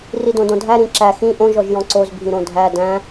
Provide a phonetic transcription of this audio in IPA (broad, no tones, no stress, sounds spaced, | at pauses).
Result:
r i d õ d õ dʱ æ ɾ ĩ ǁ æ x ĩ ʔ õ ʒ ɔ ʒ j ɔ̃ ǀ o z bʱ ĩ ɾ õ dʱ æ d æ̃